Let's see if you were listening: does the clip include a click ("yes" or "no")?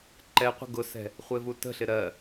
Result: yes